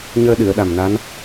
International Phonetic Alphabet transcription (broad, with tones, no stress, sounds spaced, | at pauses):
ɲ əː˧ ɗ ɨ˨˩˨ ə̯ ɗ a˨˩ m n a˧˥ n